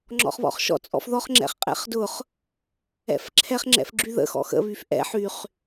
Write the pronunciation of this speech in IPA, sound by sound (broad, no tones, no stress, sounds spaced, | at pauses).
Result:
ŋ͡ǁ ɔ̰ χ β ɔ̰ χ ʃ ɔ̰ t͡sʼ ɔ̰ f ð ɔ χ ŋ͡ǁ ɛ̰ χ qʼ ɛ̰ χ d ʊ χ | ɛ̰ f ǁʰ ɛ χ ŋ͡ǁ ɛ̰ f ɡ͡ǁ y ð ə̰ x ɔ̰ x ə̰ β y f ʔ ɛ̰ ħ y χ